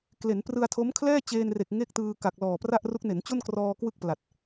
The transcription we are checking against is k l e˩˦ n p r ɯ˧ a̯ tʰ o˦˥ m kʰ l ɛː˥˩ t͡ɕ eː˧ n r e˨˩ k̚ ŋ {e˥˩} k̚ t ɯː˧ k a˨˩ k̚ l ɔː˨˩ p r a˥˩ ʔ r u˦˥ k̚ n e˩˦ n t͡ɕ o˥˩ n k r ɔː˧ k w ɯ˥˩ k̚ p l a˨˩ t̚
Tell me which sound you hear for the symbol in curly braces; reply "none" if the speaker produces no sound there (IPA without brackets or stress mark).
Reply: e˥˩